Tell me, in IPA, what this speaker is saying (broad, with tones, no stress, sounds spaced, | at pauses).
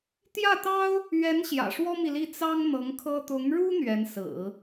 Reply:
t̪ j ä˥˩ t̪ ɑ˥ ʊ̯ | ɥ ɛ˧˥ n ɕ j ä̰˨˩ ʂ w ɔ˥ m i˨ l i˥˩ t͡s ɑ˥ ŋ n̪ ɤ˧˥ ŋ kʰ ɤ˥ t̪ ʊ˧˥ ŋ ɻ u˥ n̪ ɥ ɛ˧˥ n s ɹ̩˨˩˦